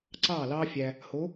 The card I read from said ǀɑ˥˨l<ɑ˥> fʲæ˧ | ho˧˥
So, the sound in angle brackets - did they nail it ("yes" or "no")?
yes